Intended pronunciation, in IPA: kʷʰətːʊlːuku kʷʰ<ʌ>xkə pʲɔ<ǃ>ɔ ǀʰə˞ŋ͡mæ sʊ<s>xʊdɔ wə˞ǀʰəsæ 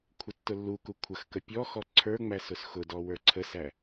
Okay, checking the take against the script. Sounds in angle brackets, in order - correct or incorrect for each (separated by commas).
incorrect, incorrect, correct